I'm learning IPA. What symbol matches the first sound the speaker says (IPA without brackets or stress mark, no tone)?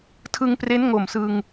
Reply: tʰ